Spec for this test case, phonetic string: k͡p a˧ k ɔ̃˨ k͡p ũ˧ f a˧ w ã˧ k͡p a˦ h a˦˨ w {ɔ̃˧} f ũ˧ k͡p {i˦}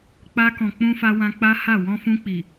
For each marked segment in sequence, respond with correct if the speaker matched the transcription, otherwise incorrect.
correct, incorrect: i˨

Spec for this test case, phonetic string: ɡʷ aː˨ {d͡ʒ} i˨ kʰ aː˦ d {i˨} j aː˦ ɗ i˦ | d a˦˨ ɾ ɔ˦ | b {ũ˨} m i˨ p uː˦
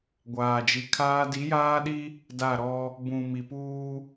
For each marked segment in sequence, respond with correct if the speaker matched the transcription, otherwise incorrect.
correct, incorrect: i˨˦, correct

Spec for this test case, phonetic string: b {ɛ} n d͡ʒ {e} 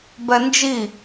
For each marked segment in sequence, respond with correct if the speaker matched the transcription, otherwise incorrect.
correct, incorrect: i

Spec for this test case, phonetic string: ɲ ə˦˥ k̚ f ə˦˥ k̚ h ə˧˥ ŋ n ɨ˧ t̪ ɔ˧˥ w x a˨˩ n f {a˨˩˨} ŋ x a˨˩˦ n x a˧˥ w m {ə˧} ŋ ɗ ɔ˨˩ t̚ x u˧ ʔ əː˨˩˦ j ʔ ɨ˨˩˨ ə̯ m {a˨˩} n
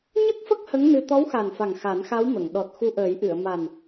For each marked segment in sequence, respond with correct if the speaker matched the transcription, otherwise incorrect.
incorrect: a˨˩, incorrect: ə˨˩˨, correct

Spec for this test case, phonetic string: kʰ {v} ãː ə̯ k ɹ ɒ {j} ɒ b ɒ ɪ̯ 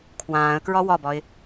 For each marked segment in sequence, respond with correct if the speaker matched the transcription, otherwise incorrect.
incorrect: w, incorrect: w

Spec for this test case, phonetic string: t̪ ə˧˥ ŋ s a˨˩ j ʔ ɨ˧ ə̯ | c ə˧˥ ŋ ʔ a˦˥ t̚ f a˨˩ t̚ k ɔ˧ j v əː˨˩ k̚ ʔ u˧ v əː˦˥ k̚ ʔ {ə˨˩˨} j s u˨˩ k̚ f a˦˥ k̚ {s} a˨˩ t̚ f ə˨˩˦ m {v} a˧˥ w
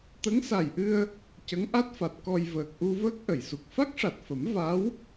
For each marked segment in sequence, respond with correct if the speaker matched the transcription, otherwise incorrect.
correct, incorrect: ʂ, correct

